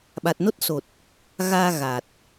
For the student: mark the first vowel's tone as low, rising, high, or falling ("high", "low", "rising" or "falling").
low